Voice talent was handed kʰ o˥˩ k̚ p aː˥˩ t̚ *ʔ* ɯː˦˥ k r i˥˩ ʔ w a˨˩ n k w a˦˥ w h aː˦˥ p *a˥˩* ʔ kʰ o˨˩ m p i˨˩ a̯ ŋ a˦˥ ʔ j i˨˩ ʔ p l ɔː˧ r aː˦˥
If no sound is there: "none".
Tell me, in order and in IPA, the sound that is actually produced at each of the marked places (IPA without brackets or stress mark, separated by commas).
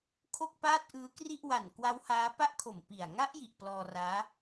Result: ʔ, a˥˩